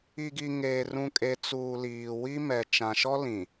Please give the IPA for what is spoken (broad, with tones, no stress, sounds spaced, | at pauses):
i˨ ɡ i˨ ŋ eː˨ r ũ˨ kʼ e˨ t͡s uː˨ l iː˨ w i˦ m ɛ˨ t͡ʃ ã˨ ʃ ɔ˦ l ĩ˨